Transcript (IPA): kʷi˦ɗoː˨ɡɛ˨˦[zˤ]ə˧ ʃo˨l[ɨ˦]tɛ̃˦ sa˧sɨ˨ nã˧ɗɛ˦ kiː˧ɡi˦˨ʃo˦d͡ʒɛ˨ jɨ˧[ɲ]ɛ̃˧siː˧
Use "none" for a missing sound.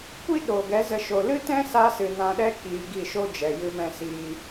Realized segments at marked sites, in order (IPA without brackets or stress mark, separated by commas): z, ɨ˦, m